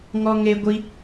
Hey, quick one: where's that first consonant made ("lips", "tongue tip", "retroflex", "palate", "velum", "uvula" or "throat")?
velum